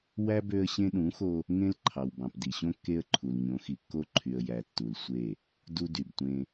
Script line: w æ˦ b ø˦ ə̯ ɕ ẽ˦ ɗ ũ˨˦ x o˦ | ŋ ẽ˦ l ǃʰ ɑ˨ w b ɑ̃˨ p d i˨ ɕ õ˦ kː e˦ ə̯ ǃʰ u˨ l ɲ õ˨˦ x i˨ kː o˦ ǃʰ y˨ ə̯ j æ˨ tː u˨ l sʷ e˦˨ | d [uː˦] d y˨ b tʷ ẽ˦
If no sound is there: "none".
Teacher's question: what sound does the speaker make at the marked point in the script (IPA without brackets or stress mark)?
u˦